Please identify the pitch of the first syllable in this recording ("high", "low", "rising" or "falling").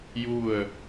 falling